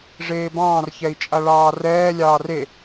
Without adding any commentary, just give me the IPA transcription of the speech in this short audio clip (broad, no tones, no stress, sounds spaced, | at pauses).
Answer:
ʐ eː b ɑ̃ː r ç ɛ i̯ t͡ʃʼ a ɭ ɑː r ɛː lʲ ɑː r e